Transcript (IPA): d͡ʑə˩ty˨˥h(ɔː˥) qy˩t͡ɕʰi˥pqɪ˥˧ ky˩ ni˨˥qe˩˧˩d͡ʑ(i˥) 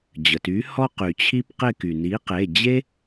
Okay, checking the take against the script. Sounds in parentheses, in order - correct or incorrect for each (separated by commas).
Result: incorrect, incorrect